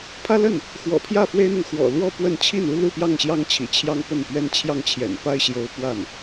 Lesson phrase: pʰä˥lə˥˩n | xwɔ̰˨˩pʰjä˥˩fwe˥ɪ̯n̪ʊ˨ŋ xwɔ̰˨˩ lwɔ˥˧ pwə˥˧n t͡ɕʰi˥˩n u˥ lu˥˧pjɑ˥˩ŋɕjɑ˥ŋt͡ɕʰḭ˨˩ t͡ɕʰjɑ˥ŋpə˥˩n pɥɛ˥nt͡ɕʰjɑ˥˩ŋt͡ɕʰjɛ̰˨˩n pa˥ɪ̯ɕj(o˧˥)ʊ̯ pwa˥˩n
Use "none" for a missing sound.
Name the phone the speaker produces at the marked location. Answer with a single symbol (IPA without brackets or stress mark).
o˧˥